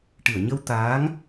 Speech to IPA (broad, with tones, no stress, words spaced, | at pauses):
ʈɨ˨˩˨ə̯ɲə˧w t̪aː˧˥ŋ